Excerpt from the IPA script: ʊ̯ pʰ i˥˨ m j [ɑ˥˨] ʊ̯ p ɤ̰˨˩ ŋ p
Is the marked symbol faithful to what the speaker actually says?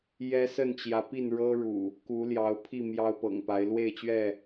no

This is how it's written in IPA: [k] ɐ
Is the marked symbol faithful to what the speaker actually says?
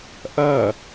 no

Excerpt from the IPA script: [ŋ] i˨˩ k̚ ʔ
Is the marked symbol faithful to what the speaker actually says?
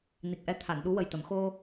no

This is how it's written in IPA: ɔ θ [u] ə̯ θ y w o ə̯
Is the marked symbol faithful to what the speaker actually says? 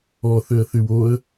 no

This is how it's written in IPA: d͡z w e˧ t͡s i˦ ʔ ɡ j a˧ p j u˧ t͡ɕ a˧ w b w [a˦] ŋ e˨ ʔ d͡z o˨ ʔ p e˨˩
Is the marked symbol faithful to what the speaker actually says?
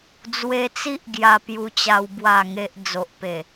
no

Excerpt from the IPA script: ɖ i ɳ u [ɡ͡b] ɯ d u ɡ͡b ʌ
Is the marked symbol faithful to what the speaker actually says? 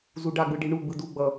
yes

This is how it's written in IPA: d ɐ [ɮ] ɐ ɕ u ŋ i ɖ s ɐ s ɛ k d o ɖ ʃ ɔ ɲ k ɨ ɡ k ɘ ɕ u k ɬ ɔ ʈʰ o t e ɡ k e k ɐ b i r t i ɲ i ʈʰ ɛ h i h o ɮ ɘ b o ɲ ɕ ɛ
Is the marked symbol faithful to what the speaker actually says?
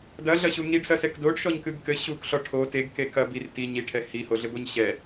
yes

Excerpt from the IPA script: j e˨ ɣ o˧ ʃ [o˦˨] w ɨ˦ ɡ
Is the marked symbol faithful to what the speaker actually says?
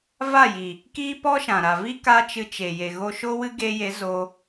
no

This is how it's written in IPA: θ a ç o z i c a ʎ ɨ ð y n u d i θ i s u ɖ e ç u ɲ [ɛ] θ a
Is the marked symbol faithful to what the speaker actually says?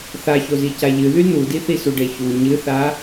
no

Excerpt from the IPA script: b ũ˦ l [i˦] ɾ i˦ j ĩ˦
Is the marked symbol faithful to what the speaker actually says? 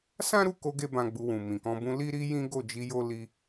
yes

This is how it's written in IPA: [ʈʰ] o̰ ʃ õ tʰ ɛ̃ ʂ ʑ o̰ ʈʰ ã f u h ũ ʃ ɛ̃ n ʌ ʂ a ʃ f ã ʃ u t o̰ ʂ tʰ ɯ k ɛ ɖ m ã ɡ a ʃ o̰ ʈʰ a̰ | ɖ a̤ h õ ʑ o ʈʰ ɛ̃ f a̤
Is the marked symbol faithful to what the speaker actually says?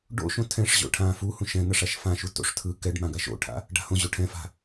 no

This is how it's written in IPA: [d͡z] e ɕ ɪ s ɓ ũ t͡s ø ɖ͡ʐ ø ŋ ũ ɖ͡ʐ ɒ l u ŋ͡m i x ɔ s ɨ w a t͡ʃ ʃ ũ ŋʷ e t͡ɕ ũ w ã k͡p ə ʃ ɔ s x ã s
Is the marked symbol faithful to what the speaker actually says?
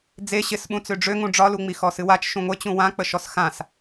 yes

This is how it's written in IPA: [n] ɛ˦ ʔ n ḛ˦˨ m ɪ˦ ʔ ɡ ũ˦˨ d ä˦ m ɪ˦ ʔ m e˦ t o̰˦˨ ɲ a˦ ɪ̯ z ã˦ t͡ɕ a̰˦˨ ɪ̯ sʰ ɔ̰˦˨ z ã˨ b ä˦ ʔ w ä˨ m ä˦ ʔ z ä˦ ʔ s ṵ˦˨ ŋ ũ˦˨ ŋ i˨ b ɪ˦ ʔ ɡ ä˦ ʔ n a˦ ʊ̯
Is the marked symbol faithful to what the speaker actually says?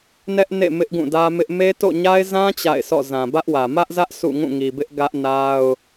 yes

